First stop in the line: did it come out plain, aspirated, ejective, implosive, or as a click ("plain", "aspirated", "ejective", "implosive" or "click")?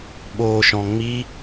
implosive